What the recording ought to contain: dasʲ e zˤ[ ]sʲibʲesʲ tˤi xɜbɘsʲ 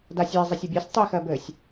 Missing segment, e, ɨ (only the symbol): e